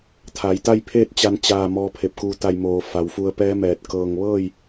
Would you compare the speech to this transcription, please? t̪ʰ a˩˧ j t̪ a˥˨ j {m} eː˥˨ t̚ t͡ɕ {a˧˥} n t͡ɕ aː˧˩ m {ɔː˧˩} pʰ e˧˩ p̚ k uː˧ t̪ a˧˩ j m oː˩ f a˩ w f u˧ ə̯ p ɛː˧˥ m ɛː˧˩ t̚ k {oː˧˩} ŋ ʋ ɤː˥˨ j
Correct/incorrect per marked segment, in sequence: incorrect: pʰ, incorrect: a˧, incorrect: ɔː˧, incorrect: ɤː˧˩

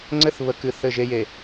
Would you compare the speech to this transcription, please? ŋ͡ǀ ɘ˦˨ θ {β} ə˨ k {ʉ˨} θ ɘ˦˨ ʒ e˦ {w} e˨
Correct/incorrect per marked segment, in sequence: correct, incorrect: ɨ˨, incorrect: j

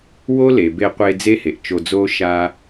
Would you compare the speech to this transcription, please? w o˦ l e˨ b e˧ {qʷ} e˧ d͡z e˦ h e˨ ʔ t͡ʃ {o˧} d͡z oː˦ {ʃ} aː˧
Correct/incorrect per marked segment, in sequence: correct, correct, correct

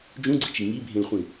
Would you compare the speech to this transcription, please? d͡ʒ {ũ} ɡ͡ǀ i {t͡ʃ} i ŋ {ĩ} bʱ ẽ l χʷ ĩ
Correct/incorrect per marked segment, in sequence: correct, correct, incorrect: i

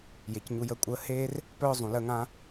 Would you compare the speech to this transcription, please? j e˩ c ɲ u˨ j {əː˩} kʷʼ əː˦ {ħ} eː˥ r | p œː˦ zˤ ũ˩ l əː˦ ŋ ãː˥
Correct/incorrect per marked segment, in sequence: incorrect: əː˦, incorrect: h

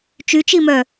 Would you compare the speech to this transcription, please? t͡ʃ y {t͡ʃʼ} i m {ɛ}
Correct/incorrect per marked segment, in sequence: incorrect: t͡ʃ, incorrect: œ

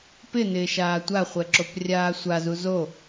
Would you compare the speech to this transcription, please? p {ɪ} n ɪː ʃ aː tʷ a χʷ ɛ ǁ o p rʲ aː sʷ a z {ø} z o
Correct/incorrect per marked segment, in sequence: correct, incorrect: u

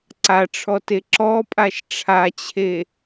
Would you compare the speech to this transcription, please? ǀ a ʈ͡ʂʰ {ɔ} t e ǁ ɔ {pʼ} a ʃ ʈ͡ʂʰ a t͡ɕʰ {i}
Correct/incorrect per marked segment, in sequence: correct, correct, incorrect: e

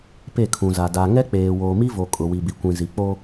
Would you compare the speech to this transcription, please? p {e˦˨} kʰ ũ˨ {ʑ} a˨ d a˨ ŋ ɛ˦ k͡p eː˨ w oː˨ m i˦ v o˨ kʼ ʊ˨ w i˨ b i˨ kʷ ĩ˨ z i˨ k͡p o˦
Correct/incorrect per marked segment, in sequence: correct, incorrect: z

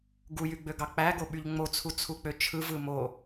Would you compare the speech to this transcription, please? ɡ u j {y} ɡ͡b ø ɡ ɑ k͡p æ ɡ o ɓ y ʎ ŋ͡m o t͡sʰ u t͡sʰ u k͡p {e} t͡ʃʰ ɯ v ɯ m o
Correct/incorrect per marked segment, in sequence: correct, incorrect: ø

